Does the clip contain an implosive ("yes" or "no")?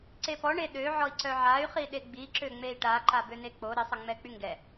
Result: yes